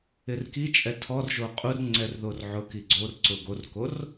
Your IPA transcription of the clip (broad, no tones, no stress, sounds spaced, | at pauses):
ɪ r k i t͡ʃʼ ɛ tʰ ɔ r ʒ o qʼ u r ŋ͡ǀ ɛ r ð o r ʕ ʊ k i ɡ͡ǀ o r ǀ ʊ ɡ o r k o r